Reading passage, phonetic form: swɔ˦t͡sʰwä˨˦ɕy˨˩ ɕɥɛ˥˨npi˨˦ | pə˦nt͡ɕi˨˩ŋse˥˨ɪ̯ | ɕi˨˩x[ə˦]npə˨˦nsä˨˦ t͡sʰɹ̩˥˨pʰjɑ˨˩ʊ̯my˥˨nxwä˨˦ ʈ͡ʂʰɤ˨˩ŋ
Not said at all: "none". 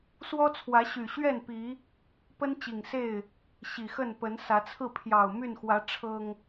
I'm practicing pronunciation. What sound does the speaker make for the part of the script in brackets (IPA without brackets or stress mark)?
ə˥˨